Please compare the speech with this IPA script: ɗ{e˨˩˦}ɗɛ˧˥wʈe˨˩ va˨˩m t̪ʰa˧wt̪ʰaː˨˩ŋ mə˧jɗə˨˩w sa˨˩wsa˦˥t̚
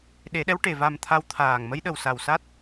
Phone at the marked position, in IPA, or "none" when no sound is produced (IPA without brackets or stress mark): e˨˩˦